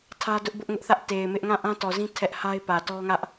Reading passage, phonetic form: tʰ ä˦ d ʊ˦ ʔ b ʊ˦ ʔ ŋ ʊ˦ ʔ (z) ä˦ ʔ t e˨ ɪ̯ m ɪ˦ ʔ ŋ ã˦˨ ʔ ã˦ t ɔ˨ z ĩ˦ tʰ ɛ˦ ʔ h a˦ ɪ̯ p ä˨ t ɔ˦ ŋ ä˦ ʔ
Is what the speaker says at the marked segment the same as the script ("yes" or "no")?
no